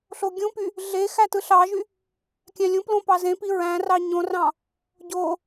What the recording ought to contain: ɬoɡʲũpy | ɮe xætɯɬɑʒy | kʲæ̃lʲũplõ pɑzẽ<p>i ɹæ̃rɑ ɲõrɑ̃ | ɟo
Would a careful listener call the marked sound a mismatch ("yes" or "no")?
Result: no